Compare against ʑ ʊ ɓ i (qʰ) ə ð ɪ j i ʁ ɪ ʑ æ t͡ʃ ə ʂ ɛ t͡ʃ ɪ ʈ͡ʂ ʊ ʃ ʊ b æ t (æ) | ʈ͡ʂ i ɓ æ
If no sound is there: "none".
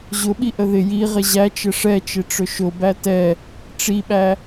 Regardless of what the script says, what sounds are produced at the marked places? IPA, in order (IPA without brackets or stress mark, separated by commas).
ʔ, ɛ